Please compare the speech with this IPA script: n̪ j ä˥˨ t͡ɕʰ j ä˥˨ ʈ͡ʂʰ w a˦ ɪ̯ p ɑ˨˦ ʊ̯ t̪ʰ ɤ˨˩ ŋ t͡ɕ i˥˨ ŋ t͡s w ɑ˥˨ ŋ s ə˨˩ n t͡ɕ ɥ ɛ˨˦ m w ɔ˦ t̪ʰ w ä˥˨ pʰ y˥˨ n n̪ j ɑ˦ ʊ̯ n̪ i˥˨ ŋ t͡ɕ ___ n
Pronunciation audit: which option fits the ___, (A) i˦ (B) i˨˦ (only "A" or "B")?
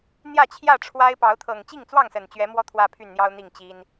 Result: A